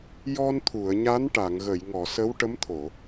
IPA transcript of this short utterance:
jɔ˧nt̪ʰu˨˩˨ə̯ ɲa˧˥nʈa˨˩˨ŋɣə˨˩˨jŋɔ˨˩˨ sə˧˥wʈə˧˥mt̪ʰo˨˩˨

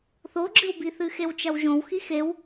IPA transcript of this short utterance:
θoɡ͡ǁɨwbiθɨ xewt͡ʃɐwʒõw xixew

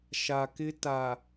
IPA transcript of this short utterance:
ʃa˨kɪ˦ta˨

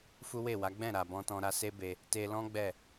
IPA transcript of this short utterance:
fu˦we˦˨wa˨˦ ɡ͡bɛ̃˦˨ɾa˨bɔ̃˧tɔ̃˧ ɾa˧se˦be˧ | te˧lɔ̃˦ ɡ͡bɛ˦˨

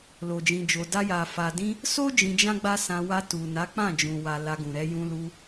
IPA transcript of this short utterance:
lo˨d͡ʒĩ˨d͡ʒo˨ da˧ja˨ fa˨dĩ˧ | so˦ d͡ʒĩ˧d͡ʒã˦ɡ͡ba˦sã˧ wa˧tu˨na˨˦k͡pã˦˨ d͡ʒũ˨wa˨ la˧ ɡũ˨ɾɛ˧jũ˧lu˧

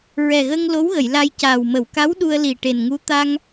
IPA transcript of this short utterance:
ɹɛ˨˩ɣə˧ŋ lo˧˥wɣə˨˩˨j la˧jcaː˨˩w mə˨˩˨wka˧˥w ɗu˧ə̯li˨˩ ʈe˨˩nŋu˧˥ t̪a˧ŋ

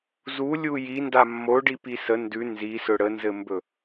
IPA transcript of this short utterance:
zu lʲuji ndamːoɖipi sə ndʉ nzisɵ ɽənzɘmbɵ

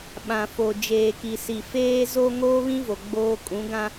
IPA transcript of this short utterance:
ɓã˨fo˨ d͡ʒeː˨ki˨si˨ feː˨zo˨ ŋoː˦βĩ˦vo˨ ɡ͡boː˨ kʼũ˨˦ɡã˦

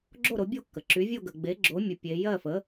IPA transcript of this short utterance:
ɡ͡ǁo˥˨ɾo˩˥bʲo˥˨kːə˩ ǁy˩˥vʲo˥˨ ɡə˩ɡ͡be˩˥ɡ͡ǁo˩˥mʲə˩˧ pʲe˩˧ jɜ˥˨fə˩˥

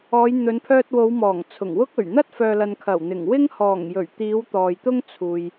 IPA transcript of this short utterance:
ɔː˨˧jn̪ɵ˨˧npʰœː˧t̚wo˨˧w mɔː˨˩ŋt͡sʰʊ˨˩ŋwʊ˥k̚ɵ˨˩ɥ n̪ɐ˥t̚fœː˨lɐ˨n kʰɐ˨˩wn̪ɪ˨˩ŋ wɪ˥ŋhɔː˨˩ŋjɵ˨˩ɥt̪iː˨˧w t̪ɔː˨jt̪ʊ˥ŋt͡sʰuː˨j

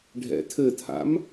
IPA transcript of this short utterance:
ɖʱɛ̰tʰɘtʰa̰m

